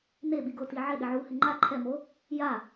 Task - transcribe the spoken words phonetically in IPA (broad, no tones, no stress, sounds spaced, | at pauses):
n e ɓ i ɡ ʊ t i ʕ ɪ ɗ ɪ ʕ u h ɪ ŋ͡ǃ a ǃʰ ɛ m o | j a